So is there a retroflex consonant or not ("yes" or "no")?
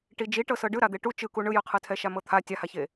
yes